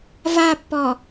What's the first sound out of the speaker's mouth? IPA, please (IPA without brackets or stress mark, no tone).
v